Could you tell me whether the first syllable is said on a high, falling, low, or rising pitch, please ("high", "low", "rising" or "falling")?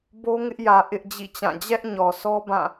high